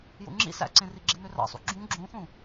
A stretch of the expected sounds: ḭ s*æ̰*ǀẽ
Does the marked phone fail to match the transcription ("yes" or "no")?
no